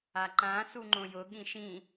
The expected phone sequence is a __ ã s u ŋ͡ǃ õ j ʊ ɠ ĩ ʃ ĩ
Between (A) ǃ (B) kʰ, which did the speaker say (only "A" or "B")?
A